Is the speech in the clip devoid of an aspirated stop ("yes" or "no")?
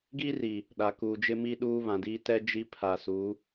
no